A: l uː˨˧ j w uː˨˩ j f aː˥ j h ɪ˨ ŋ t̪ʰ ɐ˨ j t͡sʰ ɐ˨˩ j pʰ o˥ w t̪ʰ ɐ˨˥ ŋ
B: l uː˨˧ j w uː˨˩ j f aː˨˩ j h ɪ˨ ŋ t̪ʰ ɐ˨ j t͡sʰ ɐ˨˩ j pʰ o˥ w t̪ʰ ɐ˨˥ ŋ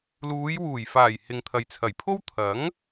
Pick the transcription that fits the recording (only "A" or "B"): B